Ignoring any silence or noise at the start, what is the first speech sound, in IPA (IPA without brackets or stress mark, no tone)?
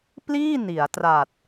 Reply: p